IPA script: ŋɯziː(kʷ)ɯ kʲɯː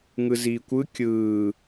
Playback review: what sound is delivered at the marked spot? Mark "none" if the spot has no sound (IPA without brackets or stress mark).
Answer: kʷ